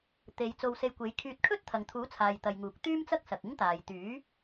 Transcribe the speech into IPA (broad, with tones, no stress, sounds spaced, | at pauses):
t̪ e˨˧ j t͡s o˧ w s e˧ j kʷ e˨˥ j kʰ yː˧ t̚ kʰ ɵ˥ t̚ t̪ʰ ɐ˨ ŋ t̪ʰ uː˨˥ t͡sʰ aː˨ j t̪ ɐ˨ j ŋ uː˨˥ k̚ t̪ yː˥ m t͡s ɐ˥ k̚ s ɐ˨ k̚ ɪ˥ ŋ t̪ aː˨ j t̪ yː˨˥